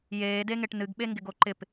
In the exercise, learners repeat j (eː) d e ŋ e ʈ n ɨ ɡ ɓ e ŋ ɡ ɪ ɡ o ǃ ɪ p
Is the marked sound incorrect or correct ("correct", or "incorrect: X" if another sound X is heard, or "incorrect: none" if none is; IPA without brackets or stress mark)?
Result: correct